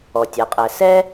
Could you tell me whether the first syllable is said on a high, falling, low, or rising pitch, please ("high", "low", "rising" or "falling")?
low